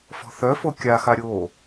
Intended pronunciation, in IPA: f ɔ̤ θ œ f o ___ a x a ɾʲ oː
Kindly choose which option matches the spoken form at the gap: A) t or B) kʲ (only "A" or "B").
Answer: B